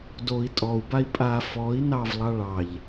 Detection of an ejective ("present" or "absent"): present